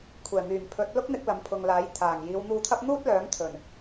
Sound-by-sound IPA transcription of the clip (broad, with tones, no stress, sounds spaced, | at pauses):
kʷʰ ɛː˨˩ m yː˨˩ m pʰ ɵ˨˥ t̚ l ʊ˥ k̚ n̪ ɪ˧ k̚ l ɐ˨˥ m pʰ ʊ˨ ŋ l aː˨˥ j t̪ʰ aː˨˩ ŋ j iː˨˧ w n̪ uː˧ t̪ʰ ɐ˥ p̚ n̪ uː˥ t̚ l œː˨˥ ŋ t̪ʰ ɵ˨˩ n